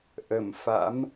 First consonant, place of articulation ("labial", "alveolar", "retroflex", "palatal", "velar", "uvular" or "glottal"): glottal